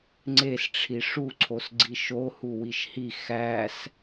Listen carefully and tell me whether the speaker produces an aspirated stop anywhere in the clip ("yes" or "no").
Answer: yes